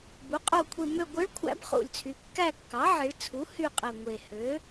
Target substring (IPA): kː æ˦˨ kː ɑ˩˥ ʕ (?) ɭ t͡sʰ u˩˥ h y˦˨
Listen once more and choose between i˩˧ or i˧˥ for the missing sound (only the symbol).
i˩˧